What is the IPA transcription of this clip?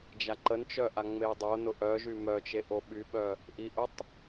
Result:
d͡ʒaǃənt͡ʃœ ʔaŋ͡meʊ̯dˤonʊ ʔœʒy mœt͡ʃe ʔoɓyɓœ | ʔiʔʊtˤ

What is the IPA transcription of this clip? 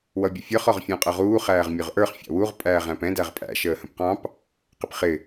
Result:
wʌbʲʊfʲə˞χ ɔʁfʲɑ̃qʼʌʁuː χæːʁmʲʊʁʔə˞χ fʲɑ̰wuʁ pʼæːʁæ̃pɛ̃ dæʁpʼæ̰ ʃəːhə̃pqɑ̃p | qɪpχɪ

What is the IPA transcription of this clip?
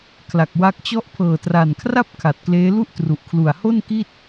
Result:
kʰla˨˩k̚wa˦˥k̚t͡ɕɔ˥˩ʔ pʰɤː˨˩tra˨˩nkʰra˥˩p̚ kʰa˨˩t̚kleː˦˥ lu˥˩ʔtru˨˩ʔ kʰlu˨˩a̯ho˥˩n ki˥˩t̚

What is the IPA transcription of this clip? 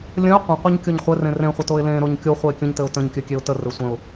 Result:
lʲə̃ɪ̯ qʷə̃qʷɘɲ kʲoɲχʷɘrẽ rẽχʷɘ toɪ̯lẽɾoɲ kʲo χʷɘɪ̯kʲə̃ɲtɘʊ̯ tə̃ɲkʲɘ kʲeʊ̯tərɘ sʷə̃ʊ̯

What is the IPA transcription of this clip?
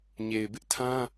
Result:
ɲe˨ɪ̯bɪ˦ʔtʰã˦

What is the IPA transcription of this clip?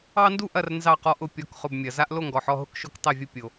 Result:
ɑ˦ndu˥˨ʔɐ˥˨r nzɑ˥˨qɔ˦ʔʊ˦ pʲɔ˩˧˩kχʊ˩˧˩bmʲɐ˩za˦ʔ lo˥˨ŋɡɔ˩ħɔ˩˧˩ ɦʊ˥˨kʃo˥˨k tˤɛ˥˨vʲʊ˦ pʲo˩

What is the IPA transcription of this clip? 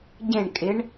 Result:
ɟẽɳ kʼɪɳ

